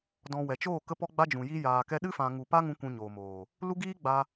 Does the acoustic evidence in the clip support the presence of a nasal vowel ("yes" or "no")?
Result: yes